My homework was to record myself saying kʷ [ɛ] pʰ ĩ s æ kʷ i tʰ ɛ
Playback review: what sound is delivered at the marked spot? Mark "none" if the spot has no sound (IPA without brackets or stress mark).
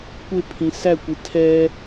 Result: ɪ